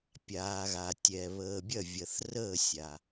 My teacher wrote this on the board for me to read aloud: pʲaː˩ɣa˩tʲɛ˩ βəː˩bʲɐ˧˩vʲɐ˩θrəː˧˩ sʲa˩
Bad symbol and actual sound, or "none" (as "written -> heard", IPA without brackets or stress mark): none